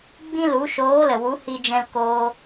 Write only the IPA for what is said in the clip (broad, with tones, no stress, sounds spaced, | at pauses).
ɡ͡b ĩ˦ l u˨˦ ʃ oː˨˦ l ə˨ w u˨˦ h i˦ d͡ʒ ɛ̃˦ l k oː˦